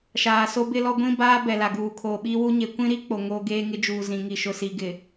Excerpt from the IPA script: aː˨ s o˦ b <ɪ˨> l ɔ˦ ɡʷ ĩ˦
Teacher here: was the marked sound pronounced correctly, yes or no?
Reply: no